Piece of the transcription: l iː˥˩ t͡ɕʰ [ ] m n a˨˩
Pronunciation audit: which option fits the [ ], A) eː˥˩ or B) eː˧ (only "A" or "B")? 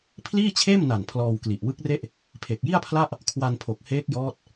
A